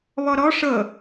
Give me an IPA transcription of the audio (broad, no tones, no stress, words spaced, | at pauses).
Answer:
βɔɾɔ ʂɤ